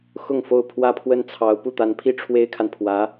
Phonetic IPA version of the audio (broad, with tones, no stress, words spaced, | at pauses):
xʊ˥˧ŋfo˥˩ʊ̯ pʰwä˥pʰwə˥˩nt͡sʰɑ˧˥ʊ̯ pu˥˩t̪a˧˥npʰi˥ ʈ͡ʂʰwe˥ɪ̯kʰa˨n pʰwä˧˥